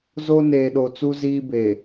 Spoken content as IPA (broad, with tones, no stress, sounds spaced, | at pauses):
z o˦ n eː˨ ɗ o˨ t͡s u˦ z iː˦ b e˨